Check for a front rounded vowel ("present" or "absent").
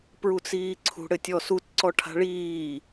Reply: absent